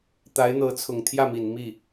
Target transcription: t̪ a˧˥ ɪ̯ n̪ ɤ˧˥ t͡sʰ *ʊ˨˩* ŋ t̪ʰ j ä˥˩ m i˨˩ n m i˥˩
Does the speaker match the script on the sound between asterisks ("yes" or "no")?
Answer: yes